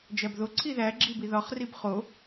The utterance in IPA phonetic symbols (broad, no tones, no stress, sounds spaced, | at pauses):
d͡ʒ æ b ð o ǀʰ i ð æ ɡ͡ǁ i b i ð ɒ χ r i b χ o